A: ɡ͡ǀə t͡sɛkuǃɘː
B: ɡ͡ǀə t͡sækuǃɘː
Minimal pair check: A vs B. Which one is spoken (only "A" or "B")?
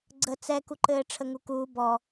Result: A